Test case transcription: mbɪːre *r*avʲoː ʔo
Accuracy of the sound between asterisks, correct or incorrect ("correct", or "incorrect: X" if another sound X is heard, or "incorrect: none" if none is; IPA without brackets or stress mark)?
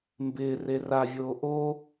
correct